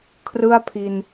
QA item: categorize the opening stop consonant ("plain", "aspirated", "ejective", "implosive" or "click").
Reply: aspirated